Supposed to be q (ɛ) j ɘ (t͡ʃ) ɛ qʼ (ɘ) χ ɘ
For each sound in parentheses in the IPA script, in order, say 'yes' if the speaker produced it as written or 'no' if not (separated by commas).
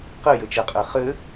no, yes, no